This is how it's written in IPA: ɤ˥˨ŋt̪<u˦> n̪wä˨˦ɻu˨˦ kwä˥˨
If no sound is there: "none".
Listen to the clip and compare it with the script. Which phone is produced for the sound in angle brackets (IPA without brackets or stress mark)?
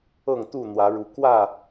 u˥˨